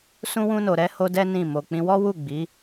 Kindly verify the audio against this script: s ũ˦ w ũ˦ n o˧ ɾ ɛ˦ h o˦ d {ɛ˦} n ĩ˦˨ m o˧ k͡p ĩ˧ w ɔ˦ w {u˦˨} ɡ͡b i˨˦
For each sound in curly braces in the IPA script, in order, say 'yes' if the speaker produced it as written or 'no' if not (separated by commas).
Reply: yes, yes